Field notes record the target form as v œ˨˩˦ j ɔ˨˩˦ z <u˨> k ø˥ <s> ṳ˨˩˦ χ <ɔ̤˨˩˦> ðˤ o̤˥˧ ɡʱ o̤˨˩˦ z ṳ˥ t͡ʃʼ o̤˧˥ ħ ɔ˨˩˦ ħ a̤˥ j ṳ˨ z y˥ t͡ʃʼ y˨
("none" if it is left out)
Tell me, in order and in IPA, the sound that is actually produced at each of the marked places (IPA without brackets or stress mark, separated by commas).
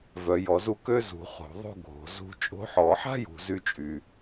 u˥˧, z, o̤˨˩˦